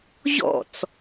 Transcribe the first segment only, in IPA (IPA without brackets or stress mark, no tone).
ʑ